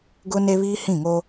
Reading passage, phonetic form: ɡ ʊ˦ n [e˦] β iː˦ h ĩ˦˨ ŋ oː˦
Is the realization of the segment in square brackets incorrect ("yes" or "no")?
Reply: no